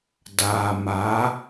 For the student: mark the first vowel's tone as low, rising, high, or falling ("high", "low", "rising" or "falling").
low